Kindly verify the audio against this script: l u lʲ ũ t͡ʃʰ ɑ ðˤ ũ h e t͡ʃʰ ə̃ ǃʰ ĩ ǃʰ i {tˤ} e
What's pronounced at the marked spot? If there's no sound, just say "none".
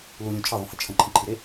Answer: ɾ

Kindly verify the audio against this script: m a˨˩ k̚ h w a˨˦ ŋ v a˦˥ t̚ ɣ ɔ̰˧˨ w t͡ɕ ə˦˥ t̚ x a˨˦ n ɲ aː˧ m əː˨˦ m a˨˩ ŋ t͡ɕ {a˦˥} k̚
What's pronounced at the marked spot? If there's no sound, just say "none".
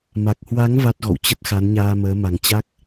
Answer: a˦˥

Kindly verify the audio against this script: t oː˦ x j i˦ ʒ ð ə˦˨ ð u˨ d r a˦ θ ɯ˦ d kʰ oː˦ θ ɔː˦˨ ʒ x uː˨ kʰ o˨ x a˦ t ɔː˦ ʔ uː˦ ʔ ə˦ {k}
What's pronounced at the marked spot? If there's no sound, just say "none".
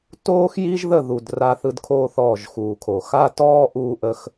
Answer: x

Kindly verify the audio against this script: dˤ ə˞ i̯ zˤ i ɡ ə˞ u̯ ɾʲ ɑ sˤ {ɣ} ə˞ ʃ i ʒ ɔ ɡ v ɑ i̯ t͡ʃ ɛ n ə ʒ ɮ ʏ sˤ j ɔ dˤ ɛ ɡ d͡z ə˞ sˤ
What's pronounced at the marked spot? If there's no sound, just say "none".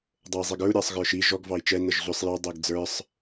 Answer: ɣ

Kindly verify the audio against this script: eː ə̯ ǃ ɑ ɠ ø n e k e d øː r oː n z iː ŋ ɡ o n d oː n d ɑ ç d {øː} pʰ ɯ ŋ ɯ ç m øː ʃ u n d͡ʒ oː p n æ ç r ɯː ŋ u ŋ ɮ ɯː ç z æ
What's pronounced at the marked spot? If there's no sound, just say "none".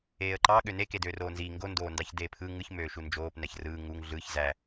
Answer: eː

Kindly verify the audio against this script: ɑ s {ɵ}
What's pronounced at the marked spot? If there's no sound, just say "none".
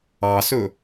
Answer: ɵ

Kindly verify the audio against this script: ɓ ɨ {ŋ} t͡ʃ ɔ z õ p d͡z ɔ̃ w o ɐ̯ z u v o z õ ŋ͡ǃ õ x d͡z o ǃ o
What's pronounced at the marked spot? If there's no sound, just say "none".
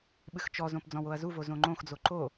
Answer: x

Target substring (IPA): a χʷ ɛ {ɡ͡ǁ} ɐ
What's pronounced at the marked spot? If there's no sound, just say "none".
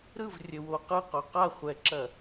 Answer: ǁ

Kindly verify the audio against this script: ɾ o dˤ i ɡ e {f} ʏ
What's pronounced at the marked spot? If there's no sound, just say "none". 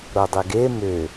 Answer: m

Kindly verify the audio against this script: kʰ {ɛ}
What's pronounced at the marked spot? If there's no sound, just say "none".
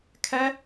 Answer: ɛ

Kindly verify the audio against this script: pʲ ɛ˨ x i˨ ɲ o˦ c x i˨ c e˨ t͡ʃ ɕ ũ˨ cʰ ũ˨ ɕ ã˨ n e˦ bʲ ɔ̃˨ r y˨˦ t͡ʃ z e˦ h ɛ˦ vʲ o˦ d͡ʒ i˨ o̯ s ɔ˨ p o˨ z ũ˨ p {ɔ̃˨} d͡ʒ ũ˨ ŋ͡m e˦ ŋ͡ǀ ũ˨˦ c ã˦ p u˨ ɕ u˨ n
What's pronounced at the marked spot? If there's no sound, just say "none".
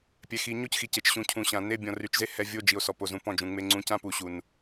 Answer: ɔ̃˦˨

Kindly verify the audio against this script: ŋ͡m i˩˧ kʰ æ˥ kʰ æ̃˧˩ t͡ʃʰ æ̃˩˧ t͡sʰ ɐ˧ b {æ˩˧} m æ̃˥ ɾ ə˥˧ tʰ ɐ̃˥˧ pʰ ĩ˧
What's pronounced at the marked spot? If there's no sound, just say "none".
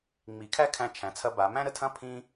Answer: a˩˧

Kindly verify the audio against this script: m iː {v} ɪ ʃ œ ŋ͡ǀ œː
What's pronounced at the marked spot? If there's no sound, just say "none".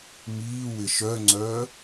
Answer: w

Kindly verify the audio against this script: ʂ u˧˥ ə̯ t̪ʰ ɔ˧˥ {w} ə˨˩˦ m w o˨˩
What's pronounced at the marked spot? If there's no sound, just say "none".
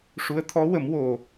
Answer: w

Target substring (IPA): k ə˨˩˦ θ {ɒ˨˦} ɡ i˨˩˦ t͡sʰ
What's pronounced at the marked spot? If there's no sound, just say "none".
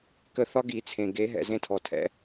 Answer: ɒ˨˦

